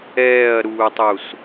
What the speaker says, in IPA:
ɛː ɐ̯ ɾ uː tˤ u s

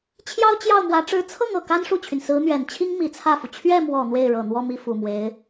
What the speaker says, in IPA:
t͡ɕʰ j ɑ˥ ʊ̯ t͡ɕ j ɑ˥˩ ʊ̯ m w ä˧˥ ʈ͡ʂ ɻ̩˧˥ t͡sʰ ɤ˥˩ ŋ ɤ˨˩ k a˥ n ʂ u˥˩ t͡ɕʰ y˩ n s ɹ̩˧˥ n̪ ɥ ɛ˨˩ n t͡ɕʰ i˥ ŋ m i˧˥ t͡sʰ ä˥˩ f u˩ t͡ɕʰ ɥ ɛ˥˩ m w ɔ˨˩ n̪ w e˥˩ ɪ̯ ɻ ɤ˨˩ n̪ w ɔ˥˧ m i˥˩ f u˨˩ m w e˧˥ ɪ̯

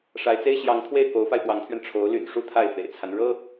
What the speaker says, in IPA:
ʂ a˧˥ ɪ̯ t͡s e˥ ɪ̯ ɕ j ɑ˧˥ ŋ t̪ʰ w e˥˩ ɪ̯ k o˧˥ ʊ̯ f a˧ ɪ̯ f w ɑ˧˥ ŋ t̪ʰ ɥ ɛ˧ n ʈ͡ʂʰ o˧˥ ʊ̯ l y̰˨˩ n ʂ u˥ t̪ʰ a˥˩ ɪ̯ f ḛ˨˩ ɪ̯ t͡sʰ a˦ n ɻ ɤ˥

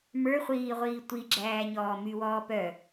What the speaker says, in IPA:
m ə˞ χʷ iː ʁʷ iː tʷ i ɡ͡ǁ æː ɲ ɔː m y w ɔː p œ

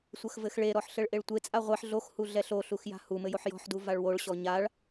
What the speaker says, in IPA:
sʷ ɐ x v ɘ x ɭ e ɾ ɔ ħ ɬ ɘ ɭ ʔ e ɭ tʷ e t͡sʼ a ʁʷ ɛ ħ ɮ o x h u ɮ ɛ ɬ o ɬ u x j a̤ h u m ɘ j o ħ j ɔ̤ ħ d u v a ɭ w o ɭ ɕ ɔ ɲ a ɭ

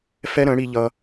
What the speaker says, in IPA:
f ɛ˦ ɾ ə̃˨˦ ɽ i˧ ʎ ʌ˧

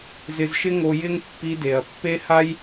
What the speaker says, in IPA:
z ɪ˧ z ʃ ɪ˦ ŋ o˧ j ɪ˦ ŋ pː i˧ d e˨ ɐ̯ pː e˦ h a˦ j

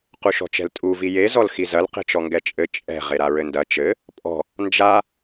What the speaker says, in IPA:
q u ʃ ɔ̤ t͡ʃ ɛ̤ l tʼ u v i j e z ɔ l x i z ɐ l q e̤ t͡ʃ ɔ ŋ ɡ ɛ t͡ʃʼ ɘ t͡ʃʼ ɛ̤ ʁ e ɾ a ɹ ɘ n d ɐ t͡ʃ ɘ | pʼ ɔ̤ | n d͡ʒ a

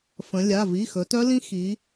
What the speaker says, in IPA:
f ə̃˩˧ lʲ a˩˧˩ v i˩˧˩ x ɵ˩˧ t œ˦˥ l ĩ˦˥ x i˩˧

